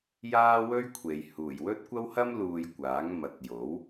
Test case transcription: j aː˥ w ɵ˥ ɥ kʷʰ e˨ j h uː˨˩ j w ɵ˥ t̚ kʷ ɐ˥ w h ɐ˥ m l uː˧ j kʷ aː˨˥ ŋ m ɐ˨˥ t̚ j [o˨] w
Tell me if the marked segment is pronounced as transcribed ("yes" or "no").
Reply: no